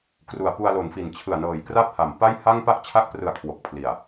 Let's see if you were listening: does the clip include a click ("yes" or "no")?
no